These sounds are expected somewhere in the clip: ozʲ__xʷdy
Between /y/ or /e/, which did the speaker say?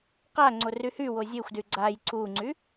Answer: e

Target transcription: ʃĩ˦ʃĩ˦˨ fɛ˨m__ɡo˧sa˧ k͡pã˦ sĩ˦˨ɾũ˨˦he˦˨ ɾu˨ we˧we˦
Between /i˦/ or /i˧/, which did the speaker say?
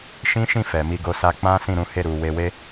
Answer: i˧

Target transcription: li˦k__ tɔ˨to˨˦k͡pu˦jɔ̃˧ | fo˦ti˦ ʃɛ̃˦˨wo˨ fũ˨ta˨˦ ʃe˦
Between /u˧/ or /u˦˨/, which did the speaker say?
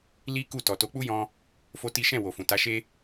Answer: u˦˨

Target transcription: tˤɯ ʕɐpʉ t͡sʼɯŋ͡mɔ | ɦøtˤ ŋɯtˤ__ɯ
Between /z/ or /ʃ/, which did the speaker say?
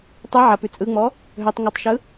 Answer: ʃ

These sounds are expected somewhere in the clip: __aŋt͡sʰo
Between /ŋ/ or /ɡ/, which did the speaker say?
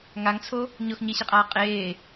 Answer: ŋ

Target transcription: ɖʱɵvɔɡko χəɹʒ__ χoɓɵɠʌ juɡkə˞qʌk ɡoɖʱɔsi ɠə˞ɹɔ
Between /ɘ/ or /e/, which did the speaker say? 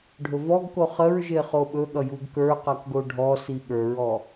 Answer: e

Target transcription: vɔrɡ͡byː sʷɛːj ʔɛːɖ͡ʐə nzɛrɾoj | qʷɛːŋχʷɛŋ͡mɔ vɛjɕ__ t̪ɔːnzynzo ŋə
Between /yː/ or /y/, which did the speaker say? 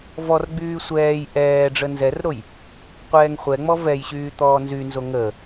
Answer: yː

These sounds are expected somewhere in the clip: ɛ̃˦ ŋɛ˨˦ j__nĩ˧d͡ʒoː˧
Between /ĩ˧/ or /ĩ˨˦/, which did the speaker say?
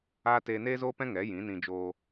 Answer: ĩ˨˦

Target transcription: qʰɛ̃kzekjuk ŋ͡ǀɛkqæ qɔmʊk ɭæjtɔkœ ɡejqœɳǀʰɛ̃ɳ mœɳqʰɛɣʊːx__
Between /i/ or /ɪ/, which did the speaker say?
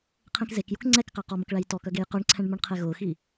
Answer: i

